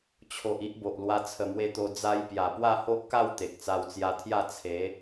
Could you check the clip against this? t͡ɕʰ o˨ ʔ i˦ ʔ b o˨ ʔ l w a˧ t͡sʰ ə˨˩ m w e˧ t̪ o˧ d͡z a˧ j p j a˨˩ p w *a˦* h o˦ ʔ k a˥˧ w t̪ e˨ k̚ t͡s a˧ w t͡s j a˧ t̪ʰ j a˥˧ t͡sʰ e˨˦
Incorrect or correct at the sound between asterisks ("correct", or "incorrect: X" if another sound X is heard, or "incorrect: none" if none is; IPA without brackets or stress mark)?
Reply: incorrect: a˥˧